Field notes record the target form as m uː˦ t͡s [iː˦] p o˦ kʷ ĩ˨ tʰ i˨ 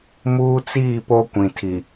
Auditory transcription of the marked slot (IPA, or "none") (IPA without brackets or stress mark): iː˦˨